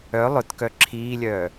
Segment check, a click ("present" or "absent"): present